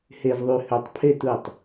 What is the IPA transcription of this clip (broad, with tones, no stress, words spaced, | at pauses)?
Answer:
he˨zðˤy˨hø˨tˤpʰe˦˨t ɯ˦˨tˤ